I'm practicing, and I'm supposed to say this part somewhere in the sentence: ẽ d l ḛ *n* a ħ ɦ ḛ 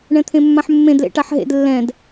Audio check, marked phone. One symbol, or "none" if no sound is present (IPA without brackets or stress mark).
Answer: ʈ